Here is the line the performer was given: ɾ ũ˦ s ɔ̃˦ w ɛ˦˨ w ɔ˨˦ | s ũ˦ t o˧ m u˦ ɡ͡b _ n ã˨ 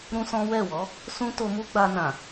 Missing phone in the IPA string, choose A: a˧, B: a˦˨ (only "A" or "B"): A